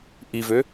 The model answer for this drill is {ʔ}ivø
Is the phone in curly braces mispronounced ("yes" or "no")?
no